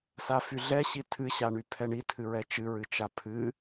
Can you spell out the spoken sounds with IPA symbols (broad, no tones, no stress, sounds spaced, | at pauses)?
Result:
s a f y ɮ ɛ ɕ i tʰ ɨ ɕ a ɳ y pʰ ɛ ɳ i tʰ ɨ ɹ ɛ t͡ʃ ɨ ɹ ɨ t͡ʃ a pʰ ɨ